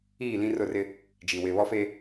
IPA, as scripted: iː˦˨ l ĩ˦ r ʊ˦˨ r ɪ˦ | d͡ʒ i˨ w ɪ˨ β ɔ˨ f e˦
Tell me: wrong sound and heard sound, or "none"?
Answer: ɔ˨ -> ɔ˦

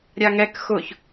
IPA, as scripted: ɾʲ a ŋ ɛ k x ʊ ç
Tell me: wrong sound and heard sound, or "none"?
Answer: none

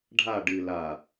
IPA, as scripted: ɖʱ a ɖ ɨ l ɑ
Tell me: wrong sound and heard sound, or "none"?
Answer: ɑ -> a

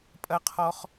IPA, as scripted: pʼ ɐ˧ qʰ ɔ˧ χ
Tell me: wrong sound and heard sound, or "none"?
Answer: none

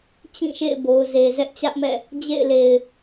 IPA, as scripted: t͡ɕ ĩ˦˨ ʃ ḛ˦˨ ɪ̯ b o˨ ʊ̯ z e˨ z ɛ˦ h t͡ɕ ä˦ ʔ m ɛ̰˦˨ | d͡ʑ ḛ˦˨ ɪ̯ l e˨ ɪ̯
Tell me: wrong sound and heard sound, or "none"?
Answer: h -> ʔ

